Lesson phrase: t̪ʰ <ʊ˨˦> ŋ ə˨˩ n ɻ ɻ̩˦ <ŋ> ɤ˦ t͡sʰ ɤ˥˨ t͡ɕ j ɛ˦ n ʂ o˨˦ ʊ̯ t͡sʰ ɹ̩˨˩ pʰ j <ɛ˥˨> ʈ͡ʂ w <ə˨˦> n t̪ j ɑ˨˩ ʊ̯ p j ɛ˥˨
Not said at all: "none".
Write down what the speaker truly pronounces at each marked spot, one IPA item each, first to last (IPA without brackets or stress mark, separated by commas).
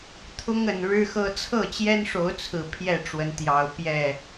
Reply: ʊ˦, x, ɛ˥˨, ə˨˦